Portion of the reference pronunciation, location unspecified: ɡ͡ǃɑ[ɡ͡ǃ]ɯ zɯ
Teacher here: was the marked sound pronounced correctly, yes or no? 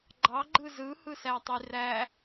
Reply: yes